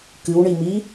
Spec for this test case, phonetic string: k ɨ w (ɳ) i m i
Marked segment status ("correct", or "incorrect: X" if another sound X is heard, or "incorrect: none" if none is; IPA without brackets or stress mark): correct